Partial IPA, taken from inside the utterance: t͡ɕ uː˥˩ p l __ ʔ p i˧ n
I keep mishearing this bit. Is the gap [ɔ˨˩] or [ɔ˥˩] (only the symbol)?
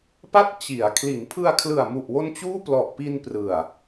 ɔ˨˩